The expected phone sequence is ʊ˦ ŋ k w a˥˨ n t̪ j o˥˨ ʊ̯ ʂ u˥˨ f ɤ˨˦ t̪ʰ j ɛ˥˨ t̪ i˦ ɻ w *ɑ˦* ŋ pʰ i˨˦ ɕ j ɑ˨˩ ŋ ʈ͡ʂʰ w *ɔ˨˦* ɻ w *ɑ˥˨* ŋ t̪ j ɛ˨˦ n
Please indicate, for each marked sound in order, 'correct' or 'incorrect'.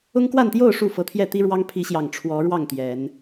correct, correct, correct

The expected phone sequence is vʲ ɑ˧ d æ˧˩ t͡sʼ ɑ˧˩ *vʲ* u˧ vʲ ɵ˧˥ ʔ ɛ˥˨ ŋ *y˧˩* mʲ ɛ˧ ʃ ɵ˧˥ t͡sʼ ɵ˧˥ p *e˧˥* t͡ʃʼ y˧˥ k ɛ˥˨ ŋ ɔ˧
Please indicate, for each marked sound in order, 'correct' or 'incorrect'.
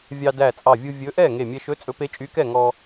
correct, incorrect: e˧˩, correct

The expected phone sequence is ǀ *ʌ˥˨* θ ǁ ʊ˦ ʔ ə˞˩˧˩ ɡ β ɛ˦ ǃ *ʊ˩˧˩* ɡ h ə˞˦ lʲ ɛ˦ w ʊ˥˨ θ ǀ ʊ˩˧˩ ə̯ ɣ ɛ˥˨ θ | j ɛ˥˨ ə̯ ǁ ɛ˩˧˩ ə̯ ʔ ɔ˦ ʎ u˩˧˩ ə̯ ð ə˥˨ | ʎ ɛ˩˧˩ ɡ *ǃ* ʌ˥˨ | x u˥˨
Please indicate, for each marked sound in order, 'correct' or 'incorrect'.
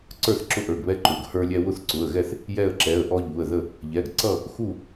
incorrect: ə˞˥˨, correct, incorrect: ǀ

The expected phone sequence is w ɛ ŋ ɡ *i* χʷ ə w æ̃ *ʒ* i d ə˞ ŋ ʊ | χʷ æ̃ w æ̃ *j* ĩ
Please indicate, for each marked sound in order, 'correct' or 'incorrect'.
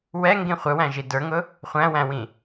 incorrect: ĩ, correct, incorrect: w

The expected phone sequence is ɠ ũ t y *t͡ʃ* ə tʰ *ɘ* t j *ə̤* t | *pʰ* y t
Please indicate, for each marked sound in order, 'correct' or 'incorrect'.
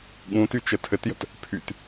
correct, correct, correct, correct

